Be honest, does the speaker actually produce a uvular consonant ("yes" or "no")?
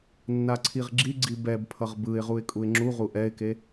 yes